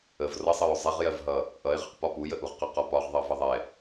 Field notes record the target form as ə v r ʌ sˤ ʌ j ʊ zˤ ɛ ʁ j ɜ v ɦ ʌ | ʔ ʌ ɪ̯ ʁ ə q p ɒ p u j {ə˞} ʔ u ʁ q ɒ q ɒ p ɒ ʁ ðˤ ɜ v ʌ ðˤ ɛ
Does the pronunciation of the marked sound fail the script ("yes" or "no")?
yes